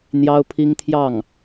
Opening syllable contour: high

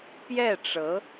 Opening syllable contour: falling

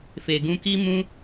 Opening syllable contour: low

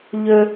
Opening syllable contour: high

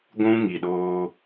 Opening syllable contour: high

